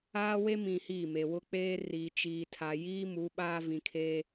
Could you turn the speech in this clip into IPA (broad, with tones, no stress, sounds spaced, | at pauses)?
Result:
aː˦ w e˦ m ĩ˨ h iː˦˨ m e˨ w ʊ˦ k͡p eː˦ r i˨ t͡ʃ iː˨ tʰ a˨ j iː˦ m u˨˦ ɓ aː˦ v ĩ˨ kʰ eː˦